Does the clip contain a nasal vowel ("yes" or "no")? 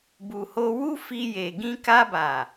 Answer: yes